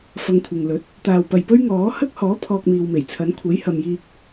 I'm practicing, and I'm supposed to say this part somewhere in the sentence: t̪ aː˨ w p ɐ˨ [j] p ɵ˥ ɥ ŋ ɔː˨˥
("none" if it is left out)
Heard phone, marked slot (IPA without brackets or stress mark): j